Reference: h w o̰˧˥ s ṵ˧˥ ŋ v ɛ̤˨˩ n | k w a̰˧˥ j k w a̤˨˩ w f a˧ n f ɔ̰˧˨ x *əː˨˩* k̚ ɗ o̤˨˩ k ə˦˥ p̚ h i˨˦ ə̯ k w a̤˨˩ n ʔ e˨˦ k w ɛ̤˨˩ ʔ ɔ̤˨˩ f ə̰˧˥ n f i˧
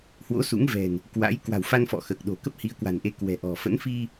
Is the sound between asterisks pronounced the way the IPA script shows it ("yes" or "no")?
yes